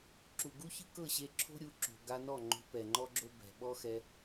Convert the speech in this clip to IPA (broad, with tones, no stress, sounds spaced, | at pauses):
ǁ u˨ ɡ u˦ ç ɯ˦ k ɤ˦˨ ɕ e˧ ǁʰ o̤˦ ɾʲ u˧ ǁ o̤˨ ɡ a˧ n ɔ˦˨ ŋ͡ǃ o̤˧ p ɛ˨ ŋ͡ǃ ɔ˦ ɡ͡ǁ o˦ b ɛ̤˨ ɓ ɔ˦ x ɛ˧